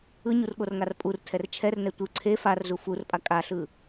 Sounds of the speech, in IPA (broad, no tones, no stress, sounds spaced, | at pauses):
ɯ ɲ u r ɠ o r ŋ a r pʼ u r tʰ ɛ r t͡ʃʰ ɛ r n ɛ tʷ ɯ ǀʰ e f a r z u f u r pʼ a kʼ a ɬ ɯ